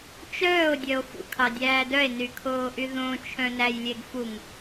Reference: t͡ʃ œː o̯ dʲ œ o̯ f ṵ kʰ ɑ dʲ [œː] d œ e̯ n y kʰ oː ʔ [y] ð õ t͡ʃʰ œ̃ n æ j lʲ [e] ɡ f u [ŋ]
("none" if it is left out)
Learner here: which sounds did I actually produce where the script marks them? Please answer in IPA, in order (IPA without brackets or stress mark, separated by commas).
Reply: æː, y, e, ŋ